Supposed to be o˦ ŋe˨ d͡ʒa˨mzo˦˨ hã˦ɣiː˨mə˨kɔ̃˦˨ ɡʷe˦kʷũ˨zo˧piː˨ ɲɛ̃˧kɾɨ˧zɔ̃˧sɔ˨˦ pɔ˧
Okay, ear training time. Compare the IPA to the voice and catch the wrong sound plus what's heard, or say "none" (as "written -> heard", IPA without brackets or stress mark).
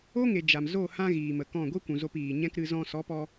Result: none